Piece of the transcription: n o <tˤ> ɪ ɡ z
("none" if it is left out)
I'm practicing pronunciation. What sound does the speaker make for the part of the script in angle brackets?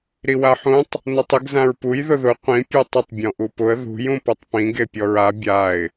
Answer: tˤ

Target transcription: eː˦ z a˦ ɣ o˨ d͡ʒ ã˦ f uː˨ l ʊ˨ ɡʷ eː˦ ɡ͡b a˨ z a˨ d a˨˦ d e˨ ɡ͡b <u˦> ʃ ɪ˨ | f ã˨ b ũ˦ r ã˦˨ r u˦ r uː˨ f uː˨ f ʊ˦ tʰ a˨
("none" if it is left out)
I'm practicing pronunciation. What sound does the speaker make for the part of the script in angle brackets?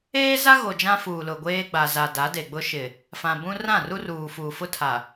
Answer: ʊ˦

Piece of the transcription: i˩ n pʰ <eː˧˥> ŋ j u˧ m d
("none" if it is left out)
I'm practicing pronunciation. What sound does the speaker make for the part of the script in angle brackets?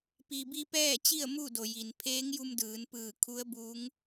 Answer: eː˧˥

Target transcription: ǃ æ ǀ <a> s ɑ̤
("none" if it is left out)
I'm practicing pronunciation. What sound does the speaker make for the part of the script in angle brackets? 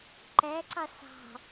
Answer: ɑ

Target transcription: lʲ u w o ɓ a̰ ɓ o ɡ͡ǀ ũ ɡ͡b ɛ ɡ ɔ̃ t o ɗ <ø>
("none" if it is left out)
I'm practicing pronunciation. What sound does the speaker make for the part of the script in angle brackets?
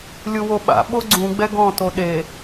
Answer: e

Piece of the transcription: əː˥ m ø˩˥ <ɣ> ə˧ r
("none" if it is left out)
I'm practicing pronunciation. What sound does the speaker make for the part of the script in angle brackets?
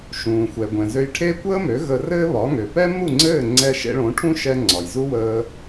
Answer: ɣ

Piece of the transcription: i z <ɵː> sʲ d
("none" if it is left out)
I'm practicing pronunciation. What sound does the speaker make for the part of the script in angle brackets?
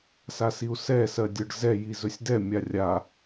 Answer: ɵ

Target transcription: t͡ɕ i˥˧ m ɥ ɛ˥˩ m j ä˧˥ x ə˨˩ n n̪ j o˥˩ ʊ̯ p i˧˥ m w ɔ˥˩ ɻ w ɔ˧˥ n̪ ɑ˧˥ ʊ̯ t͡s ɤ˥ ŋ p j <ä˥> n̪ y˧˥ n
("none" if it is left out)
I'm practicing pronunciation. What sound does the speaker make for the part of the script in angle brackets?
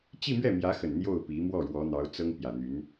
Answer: ä˨˩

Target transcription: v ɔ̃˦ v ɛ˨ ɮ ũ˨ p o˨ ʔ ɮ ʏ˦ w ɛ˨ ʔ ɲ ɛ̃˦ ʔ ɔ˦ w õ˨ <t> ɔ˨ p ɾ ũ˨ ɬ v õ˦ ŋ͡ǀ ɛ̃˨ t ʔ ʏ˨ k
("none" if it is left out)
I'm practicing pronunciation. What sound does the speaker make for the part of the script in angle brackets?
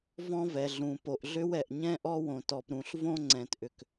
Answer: t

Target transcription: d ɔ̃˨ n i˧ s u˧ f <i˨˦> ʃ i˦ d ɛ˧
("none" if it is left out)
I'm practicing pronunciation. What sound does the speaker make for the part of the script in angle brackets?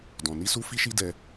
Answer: i˦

